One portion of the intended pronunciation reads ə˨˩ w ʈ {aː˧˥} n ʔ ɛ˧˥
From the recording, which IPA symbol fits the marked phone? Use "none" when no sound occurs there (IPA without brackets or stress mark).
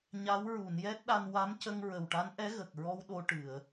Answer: a˧˥